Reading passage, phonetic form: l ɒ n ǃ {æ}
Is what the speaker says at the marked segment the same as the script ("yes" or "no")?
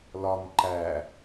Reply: yes